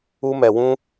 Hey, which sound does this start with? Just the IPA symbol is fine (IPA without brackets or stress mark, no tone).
u